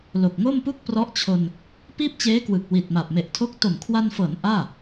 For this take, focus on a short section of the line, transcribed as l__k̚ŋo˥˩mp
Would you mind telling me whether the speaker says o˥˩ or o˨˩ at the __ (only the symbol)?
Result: o˨˩